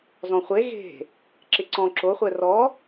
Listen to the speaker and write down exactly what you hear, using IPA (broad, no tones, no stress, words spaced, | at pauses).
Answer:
zɔ̃χʷe ɣe̤ | ǁɪǀɔ̃ ǁo χʷɛrɔ